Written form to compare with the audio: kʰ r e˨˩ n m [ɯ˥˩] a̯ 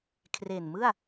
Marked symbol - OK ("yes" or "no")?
yes